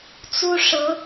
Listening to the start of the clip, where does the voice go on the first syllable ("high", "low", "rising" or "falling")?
high